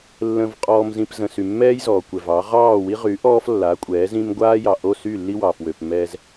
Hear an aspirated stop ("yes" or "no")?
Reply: no